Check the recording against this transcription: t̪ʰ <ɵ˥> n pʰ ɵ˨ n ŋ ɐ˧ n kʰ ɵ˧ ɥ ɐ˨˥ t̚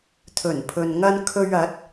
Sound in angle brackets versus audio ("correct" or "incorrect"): incorrect